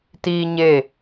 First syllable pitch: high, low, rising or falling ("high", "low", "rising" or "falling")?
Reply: high